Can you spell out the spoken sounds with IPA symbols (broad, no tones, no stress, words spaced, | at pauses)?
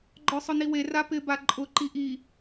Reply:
ɡ͡ǃɔsˤʊniwe rapɪ baǃʼʊ ǃiʔi